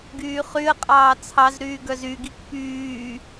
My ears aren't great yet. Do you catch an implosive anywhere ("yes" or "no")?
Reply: no